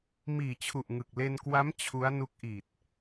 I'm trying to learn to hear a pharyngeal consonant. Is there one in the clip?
no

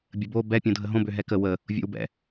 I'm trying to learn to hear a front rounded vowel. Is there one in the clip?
yes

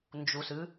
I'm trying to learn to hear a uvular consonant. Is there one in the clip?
no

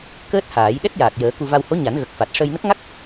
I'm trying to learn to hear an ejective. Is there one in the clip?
no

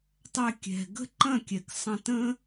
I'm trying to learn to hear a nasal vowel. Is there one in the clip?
yes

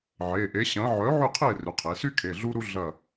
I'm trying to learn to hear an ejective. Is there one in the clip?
no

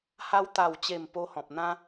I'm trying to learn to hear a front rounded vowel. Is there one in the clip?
no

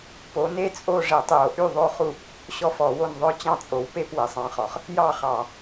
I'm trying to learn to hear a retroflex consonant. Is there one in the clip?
yes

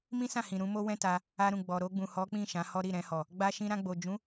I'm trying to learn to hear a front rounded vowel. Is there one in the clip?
no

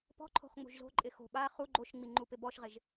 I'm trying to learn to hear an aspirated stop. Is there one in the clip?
yes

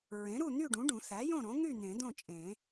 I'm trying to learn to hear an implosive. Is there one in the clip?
no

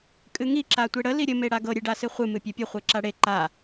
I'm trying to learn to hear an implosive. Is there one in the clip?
no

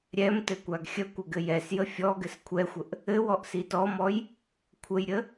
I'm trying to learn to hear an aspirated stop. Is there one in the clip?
yes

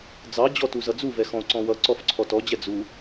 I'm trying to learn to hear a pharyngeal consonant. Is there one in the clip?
no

